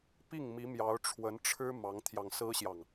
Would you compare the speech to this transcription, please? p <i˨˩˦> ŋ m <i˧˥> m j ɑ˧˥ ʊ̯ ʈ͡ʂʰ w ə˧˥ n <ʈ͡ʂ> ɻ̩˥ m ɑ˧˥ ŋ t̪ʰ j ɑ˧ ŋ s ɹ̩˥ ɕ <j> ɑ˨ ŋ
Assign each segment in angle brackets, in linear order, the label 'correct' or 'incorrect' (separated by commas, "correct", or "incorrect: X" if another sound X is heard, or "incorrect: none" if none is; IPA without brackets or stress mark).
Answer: incorrect: i˥˩, correct, incorrect: ʈ͡ʂʰ, correct